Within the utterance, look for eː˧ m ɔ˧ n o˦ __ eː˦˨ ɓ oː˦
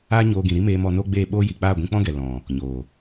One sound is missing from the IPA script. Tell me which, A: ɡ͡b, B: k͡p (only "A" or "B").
A